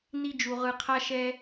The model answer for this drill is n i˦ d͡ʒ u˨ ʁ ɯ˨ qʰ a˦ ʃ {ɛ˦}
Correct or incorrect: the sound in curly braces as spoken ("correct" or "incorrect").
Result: correct